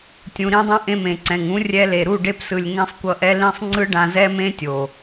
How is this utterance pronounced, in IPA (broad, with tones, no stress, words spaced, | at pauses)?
tʲũ˨ɾĩ˧dˤũ˧ ʔẽ˧mẽ˨ǀɛ̃˨ŋũ˨˦ rʲɛ˧le˨ɾu˦˨ ɖe˧psɯ˨lʲŋɛ̃˧sˤ kʷʌ˧ʔɛ˧lĩ˦˨sˤ ŋ͡ǀɯ˦ɖã˧zɛ˦mẽ˦ tʲo˨